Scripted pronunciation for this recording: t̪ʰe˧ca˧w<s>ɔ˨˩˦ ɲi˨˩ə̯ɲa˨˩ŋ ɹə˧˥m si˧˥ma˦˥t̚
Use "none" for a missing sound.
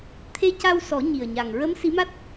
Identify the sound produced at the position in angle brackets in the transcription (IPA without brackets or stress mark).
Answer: s